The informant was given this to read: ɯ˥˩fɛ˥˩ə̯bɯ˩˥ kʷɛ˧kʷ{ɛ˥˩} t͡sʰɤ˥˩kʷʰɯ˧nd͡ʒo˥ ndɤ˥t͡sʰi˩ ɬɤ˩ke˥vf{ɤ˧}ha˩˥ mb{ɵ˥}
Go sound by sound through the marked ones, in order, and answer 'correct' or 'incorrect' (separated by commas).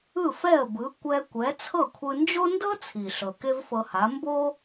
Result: incorrect, correct, incorrect